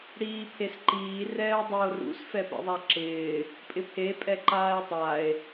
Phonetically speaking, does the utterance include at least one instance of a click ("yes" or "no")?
yes